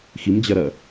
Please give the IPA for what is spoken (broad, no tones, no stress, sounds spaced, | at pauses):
x i m d͡ʑ ɜ ɾ ɜ